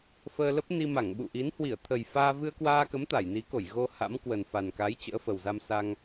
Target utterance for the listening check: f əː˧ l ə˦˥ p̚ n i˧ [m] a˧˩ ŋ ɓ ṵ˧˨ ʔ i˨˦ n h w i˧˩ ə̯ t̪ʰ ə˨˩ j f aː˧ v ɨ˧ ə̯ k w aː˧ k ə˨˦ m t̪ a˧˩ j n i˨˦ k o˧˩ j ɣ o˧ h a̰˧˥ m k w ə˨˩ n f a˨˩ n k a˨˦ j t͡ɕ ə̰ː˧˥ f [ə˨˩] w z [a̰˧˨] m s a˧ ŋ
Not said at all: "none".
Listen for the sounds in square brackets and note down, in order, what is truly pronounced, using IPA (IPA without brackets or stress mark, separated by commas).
m, ə˨˩, a˧